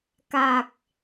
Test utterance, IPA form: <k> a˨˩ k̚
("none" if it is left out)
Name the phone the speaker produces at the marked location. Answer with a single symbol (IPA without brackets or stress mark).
k